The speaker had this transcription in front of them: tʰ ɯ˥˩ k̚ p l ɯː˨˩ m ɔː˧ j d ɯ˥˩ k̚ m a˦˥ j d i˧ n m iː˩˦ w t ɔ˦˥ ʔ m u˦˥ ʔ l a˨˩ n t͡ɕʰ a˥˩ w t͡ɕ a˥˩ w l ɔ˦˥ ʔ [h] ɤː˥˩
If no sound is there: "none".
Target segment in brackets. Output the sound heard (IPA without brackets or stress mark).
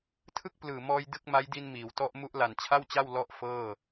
f